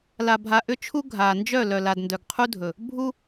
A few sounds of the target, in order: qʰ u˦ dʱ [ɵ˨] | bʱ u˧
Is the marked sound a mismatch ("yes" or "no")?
no